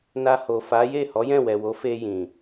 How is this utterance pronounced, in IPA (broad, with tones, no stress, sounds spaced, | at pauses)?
n a˧ h o˨ f a˨˦ j e˦˨ h ɔ˨˦ j ɛ̃˦˨ w ɛ˨ w o˨˦ f e˧ j ĩ˨